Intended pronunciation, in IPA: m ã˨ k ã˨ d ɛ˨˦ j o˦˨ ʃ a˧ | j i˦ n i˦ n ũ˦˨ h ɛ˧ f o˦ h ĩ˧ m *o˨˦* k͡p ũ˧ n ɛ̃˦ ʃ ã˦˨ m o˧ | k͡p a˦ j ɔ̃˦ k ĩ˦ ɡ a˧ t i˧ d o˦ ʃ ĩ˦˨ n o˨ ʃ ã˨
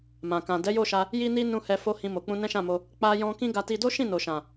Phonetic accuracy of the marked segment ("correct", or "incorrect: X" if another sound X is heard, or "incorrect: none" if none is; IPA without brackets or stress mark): incorrect: o˨